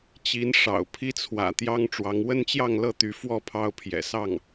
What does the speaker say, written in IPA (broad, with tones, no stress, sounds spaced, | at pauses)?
t͡ɕ i˧˥ n ʂ ɑ̰˨˩ ʊ̯ pʰ i˥ t͡sʰ w ä̰˨˩ t̪ j ɑ˥ ŋ ʈ͡ʂ w ɑ˧˥ ŋ w ə˥ n t͡ɕ j ɑ˥˧ ŋ l ɤ˥˩ t̪ y˧˥ f w ɔ˥˩ pʰ ɑ˥ ʊ̯ pʰ j ɛ̰˨˩ s ɑ˥˩ ŋ